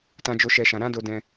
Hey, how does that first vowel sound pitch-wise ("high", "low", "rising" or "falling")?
high